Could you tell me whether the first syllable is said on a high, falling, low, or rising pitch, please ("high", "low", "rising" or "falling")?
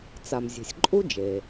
low